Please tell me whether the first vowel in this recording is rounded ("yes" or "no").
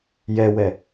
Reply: no